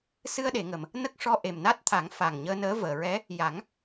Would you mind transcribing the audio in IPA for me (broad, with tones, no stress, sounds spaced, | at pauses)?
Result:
s ɨ˧ ə̯ ɗ e˨˩˨ ŋ ə˨˩˨ m | n ə˦˥ k̚ ʂ ɔ˧ ʔ e˨˩ m n a˦˥ t̚ t̪ʰ a˨˩˦ ŋ f a˨˩ ŋ ɲ əː˧ n əː˧˥ v əː˨˩˨ ɹ ɛ˧˥ | j a˨˩˦ ŋ